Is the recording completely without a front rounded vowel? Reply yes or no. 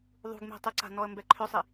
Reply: no